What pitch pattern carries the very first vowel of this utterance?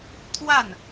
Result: falling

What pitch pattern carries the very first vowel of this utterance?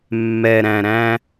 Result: low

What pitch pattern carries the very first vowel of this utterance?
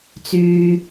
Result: low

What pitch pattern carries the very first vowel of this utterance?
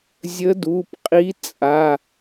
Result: rising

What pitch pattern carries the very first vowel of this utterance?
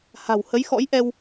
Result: low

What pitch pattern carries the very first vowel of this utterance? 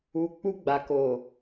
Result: low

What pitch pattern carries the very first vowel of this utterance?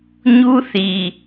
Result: high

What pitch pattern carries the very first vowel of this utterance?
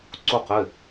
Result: falling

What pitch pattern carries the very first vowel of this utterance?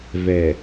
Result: low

